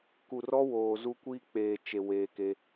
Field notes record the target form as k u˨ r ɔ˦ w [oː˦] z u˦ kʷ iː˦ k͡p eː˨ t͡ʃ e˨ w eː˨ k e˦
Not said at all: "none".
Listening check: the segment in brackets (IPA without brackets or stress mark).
oː˨